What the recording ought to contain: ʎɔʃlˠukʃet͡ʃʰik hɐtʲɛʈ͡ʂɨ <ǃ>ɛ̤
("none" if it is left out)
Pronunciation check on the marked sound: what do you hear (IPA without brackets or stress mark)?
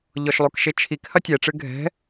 ɡʱ